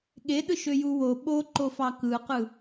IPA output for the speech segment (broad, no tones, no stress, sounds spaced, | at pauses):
ɠ e ɗ ɯ ʃ ø j u w o ɓ o ǃ o f ɑ k ɯ q ɯ